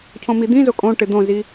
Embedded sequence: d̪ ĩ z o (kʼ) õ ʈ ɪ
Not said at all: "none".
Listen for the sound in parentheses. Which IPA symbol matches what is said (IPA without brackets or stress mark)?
kʼ